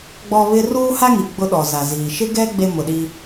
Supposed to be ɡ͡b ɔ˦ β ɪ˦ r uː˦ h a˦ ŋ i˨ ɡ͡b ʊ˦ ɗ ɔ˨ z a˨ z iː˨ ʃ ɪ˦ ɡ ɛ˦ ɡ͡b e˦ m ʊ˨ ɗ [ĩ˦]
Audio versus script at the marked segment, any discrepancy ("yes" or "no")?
yes